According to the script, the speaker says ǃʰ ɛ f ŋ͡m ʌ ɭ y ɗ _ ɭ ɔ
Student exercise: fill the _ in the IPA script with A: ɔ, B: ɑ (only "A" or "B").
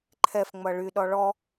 A